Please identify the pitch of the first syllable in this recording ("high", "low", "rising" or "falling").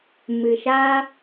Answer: low